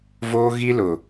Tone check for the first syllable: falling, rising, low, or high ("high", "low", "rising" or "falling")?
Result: high